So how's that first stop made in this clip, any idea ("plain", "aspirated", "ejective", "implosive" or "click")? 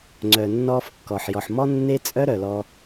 click